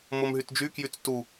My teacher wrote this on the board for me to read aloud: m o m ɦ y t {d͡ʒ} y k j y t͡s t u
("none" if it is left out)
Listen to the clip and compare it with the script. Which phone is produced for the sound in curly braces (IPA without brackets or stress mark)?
d͡ʒ